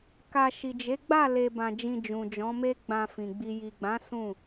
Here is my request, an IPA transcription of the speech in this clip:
k a˧ ʃ i˨ d͡ʒ e˨˦ ɡ͡b a˦˨ l e˧ b ã˧ d͡ʒ ĩ˧ d͡ʒ ũ˨ d͡ʒ ɔ̃˨˦ m e˦ ɡ͡b ã˧ f ĩ˨ ɡ͡b i˨ j i˨ ɡ͡b ã˨˦ s ũ˦˨

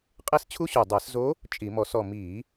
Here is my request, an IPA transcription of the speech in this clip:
qʼ e˥ s t͡ɕʰ u˥ ɕ u˨˩ dˤ ɛ˧˩˧ s z o˧˥ | t͡ʃʼ i˧˩˧ m ɔ˧˩˧ s ɔ˦˨ m i˧˩˧

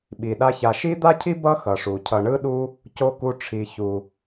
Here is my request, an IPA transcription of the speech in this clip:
ɓ i˩ ɗ a˦ ç a˨ ʃ i˥ d̪ a˥ cʰ i˥ b ʌ˥ x ʌ˩ ʂ u˩ cʰ ʌ˨ ɳ ɯ˦ ɗ u˦ | c o˥ k u˦ ʈ͡ʂʰ i˨ ç u˨

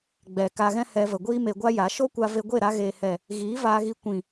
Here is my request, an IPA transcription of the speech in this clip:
ɡ͡b ɛ˨ k a˧ ɣ ɛ̃˦ h ɛ˧ v ə˨ ɡʷ iː˦ m e˧ ɡʷ a˦ j a˨˦ ʃ o˦ kʷ a˧ v e˧ ɡʷ e˦˨ ɾ a˧ ɣ e˨ h ɛ˨ | ɣ iː˨˦ v aː˧ ɣ i˧ kʷ ĩ˨

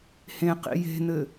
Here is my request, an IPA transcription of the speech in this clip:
h ẽ q ḭ j e̤ n̪ ɘ

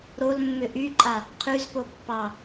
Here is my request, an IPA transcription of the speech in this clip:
ɾ o l mː ʏ ʔ y ǃʼ a | qʰ y z p o pː ɑ

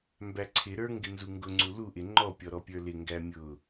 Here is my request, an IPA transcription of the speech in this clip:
m b æ ǀʰ ɪ ɾ ə˞ ŋ ɡ ɪ n z u ŋ ɡ ʊ ŋ͡ǀ u l u ʔ ɪ ŋ͡ǃ ɔ pʲ ɔ ɾ ɔ pʲ ə˞ l ɪ ŋ ɡ æ mʲ ʊ

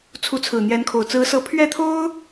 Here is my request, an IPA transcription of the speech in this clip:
t͡sʰ u˧˥ t͡sʰ ɹ̩˨˩ n̪ j ɛ˧˥ n kʰ o˨˩ ʊ̯ t͡s ɹ̩˧˥ s ɤ˧˥ pʰ ɥ ɛ˥˩ t̪ʰ o˥ ʊ̯

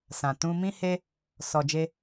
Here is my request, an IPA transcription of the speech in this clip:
s ã˨ t ũ˧ m ĩ˧ h e˧ | s ɔ˨ d͡ʒ e˧

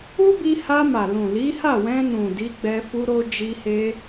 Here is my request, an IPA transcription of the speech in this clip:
u˦ b i˧ h a˧ m a˨ l ũ˨ l i˨˦ h a˦˨ w ɛ̃˧ n ũ˨ d i˨˦ ɡ͡b ɛ˧ f u˧ ɾ o˧ d͡ʒ i˧ h e˧

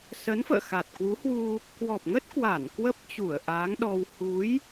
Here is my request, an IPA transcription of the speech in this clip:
s ə˨˦ n f ə̰ː˧˨ x a˨˩ t̚ k w u˨˦ h w u˧ | k w ɔ˨˩ p̚ ŋ ə˦˥ t̚ k w a˧˩ n k w ə˦˥ p̚ t͡ɕ u˧˩ ə̯ ʔ aː˨˦ ŋ ɗ ɔ˧ w h u˨˦ j

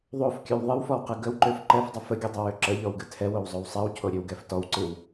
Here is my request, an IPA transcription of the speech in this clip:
ðˤ o f kʲ ʉ w ðˤ ɨ w f ɔ w q ɨ ɡ ə w ǃ ø f ǃ ɛ f dˤ ə f ə ɡʲ ɨ dˤ o w ø ǁ ə ʎ ɔ w ɡ ɨ tʰ ɛ w o w zˤ o w sˤ ɛ w cʰ o ɾʲ ø w ɡ ɛ f t ɔ w ǀ ɨ w

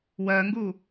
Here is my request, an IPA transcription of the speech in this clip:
w ɜ ŋ ɡ u

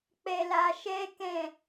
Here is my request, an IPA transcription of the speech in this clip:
k͡p ɛ˧ l a˧ ʃ ɛ˦ k ɛ̃˦˨

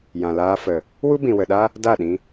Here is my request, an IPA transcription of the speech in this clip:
j ã˨ l aː˧ f ə˨ | w u˦ b ĩ˨ w ə˨ ɗ a˦ | d a˦˨ ɗ ĩ˧

